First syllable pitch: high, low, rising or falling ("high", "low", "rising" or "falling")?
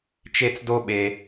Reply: high